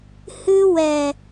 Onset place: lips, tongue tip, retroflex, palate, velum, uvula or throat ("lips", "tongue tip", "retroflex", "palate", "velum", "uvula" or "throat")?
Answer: throat